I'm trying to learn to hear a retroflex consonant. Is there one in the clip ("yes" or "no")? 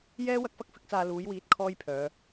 no